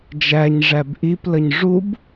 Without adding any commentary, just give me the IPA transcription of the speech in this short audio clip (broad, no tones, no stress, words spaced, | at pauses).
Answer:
d͡ʒæɲ ʐæbʔip ləɲʐub